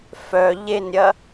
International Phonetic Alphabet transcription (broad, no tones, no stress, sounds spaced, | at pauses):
f œ ʎ e n ɾʲ ɐ